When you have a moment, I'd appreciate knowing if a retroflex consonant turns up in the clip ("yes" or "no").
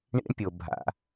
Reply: yes